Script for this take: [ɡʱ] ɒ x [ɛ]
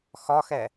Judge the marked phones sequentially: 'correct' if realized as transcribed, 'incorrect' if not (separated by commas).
incorrect, correct